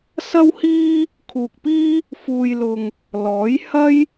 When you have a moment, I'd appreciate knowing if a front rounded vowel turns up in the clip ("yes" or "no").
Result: no